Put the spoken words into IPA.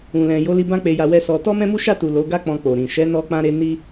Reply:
ũ˨ l ɛ̃˨ j o˨˦ l i˧ b ã˦ k͡p e˧ j a˧ w ɛ˧ s ɔ˧ t ɔ˦ m ɛ̃˦ m u˦ ʃ a˦˨ t u˨ l o˨˦ ɡ a˦ k͡p ɔ̃˧ k͡p o˨ ɾ ĩ˨ ʃ ɛ˨˦ n ɔ˧ k͡p ã˧ ɾ e˧ n i˦

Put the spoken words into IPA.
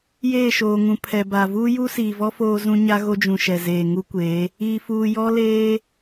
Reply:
j eː˦˨ ʃ oː˨ ŋ ũ˨ pʰ ɛ˨ b a˨ v uː˦ j u˦ s iː˨ v ɔ˦ f oː˦ z ũ˦ ɲ a˦ ɣ o˦ d͡ʒ ũ˨ ʃ ɛ˨ z eː˨ ŋ u˦ kʷ eː˨˦ | iː˨ f uː˨ j ɔ˦ l eː˦

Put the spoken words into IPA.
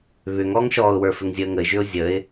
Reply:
β ʏ ŋ ɔ ŋ ʃ ɔː ʊ̯ w ə˞ f ɘ ŋ zʲ əː ŋ ə ɪ̯ ʒ ʏ ʊ̯ zʲ ə ɪ̯

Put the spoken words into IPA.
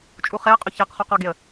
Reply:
t͡ʃʼ u χ e ə̯ qʼ o ç æ q χ u q ɒ ɡ e ə̯

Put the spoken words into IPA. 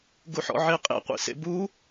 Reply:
ɡ u ħ ɔ̰ ʕ e qʼ ḛ qʷ ḭ s ḛ b u

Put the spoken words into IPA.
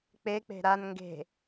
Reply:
k͡p e k͡p e̤ ɾ a n ŋ ɡ e̤

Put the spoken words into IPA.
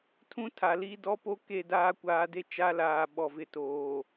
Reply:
tʰ ũ˦ tʰ a˨ l i˦ d ɔ˦ p o˦ k e˦ d aː˦ kʷ aː˨ d e˦ t͡ʃ a˦ l aː˨ ɓ ɔ˨ v ɪ˨ t oː˨

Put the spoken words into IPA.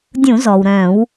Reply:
dʲ ũ˧˩˧ z ɔː˩ w ɾ œ̃ː˧˩˧ w

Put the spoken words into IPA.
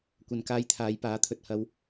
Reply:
kʷ ɐ˨ n k aː˧ j t̪ʰ aː˨˧ j p aː˨˥ t̪ʰ ɵ˨ t̚ h ɐ˧ w

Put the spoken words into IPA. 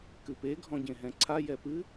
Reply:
k ɨ p e ɡʱ ɔ̃ ɟ ẽ ɦ ɛ̃ ǀʰ a j ɛ p ɨ

